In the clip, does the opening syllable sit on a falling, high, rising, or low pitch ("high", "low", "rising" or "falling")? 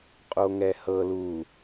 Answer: low